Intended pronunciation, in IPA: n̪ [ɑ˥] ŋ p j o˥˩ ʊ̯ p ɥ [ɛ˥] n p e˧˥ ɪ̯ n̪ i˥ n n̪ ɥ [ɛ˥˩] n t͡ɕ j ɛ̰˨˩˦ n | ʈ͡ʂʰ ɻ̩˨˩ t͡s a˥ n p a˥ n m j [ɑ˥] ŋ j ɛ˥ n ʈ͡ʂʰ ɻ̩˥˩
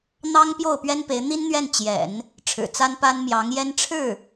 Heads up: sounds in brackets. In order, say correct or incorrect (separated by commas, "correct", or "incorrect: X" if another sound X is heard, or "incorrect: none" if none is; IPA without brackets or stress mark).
correct, correct, correct, incorrect: ɑ˧˥